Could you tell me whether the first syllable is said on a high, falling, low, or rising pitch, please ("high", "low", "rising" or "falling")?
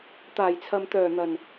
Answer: low